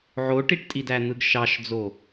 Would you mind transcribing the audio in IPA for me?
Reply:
ʕ o ʈ i ʈ tʼ i d æ n̪ ɯ ɡ ʃ ɑ ʃ d͡z o

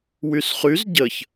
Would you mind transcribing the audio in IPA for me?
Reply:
w y s χ y z ɟ ə ç

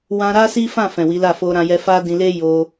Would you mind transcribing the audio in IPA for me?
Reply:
w ã˧ ɾ a˦ s i˦ f ã˦˨ f ɛ̃˨ w i˨˦ l a˦˨ f o˧ ɾ ã˧ j ɛ˧ f a˦ d ĩ˧ l e˦ j o˧

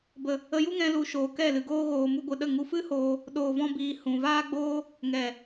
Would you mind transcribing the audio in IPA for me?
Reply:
b ə˨ | ə˧ j u˦ ŋ ɛ̃˧ l u˨ ʃ oː˨ k ɛ˦˨ l ɨ˨ ɡ oː˦ ɣ oː˨ m u˧ ɡʷ ɨ˨ ɗ ə˦˨ ŋ u˧ f ɨ˦ h oː˧ | ɗ oː˨ v ɔ̃˧ b iː˨ h ũ˨ v aː˦ ɡ͡b oː˦ | ŋ ɛ˨

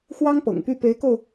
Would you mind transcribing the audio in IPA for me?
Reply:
x w ɑ˥ ŋ p ɤ̰˨˩ ŋ p y˥˩ p e˧˥ ɪ̯ k o˧ ʊ̯

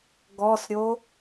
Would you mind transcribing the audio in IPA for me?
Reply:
ɡ ɔ s ɾʲ o

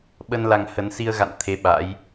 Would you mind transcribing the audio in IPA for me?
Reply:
ɓ ə˧ n l a˧ ŋ h ə˨˦ n s i˧ ə̯ ɣ a̰˧˨ n t̪ʰ e˧ ɓ a̰˧˥ j

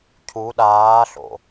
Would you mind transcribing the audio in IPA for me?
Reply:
cʰ u ɗ aː ɬ o̰

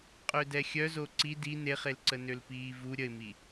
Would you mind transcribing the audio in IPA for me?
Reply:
qʼ ø d ɛ xʲ œ z o ǀ i d i n e χ e l ǀ ə n ø l p iː v u ɾʲ ə ɪ̯ m i

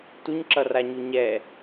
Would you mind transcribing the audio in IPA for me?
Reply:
t u ɲ ǁ ʌ r a ɲ u ɲ ɛ

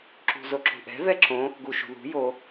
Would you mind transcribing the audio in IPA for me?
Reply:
ǁ ṳ z o ǁ ṳ ʔ ɛ̤ v ɛ ǁ õ | ɡ u ʃ ṳ ð ṳ j o

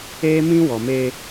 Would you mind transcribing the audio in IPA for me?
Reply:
eː˦ m ĩ˦ w ɔ˨ m e˦

